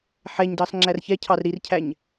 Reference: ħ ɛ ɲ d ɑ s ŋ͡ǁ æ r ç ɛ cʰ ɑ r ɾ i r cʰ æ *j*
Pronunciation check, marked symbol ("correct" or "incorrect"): incorrect